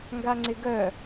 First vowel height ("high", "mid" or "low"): low